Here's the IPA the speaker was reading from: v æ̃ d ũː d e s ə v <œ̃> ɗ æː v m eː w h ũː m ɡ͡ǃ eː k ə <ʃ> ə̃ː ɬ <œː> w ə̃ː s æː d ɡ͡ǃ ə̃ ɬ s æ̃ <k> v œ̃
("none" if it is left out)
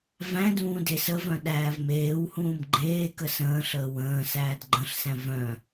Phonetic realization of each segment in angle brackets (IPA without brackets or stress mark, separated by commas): œ̃, s, əː, none